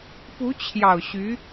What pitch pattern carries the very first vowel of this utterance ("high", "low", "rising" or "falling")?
rising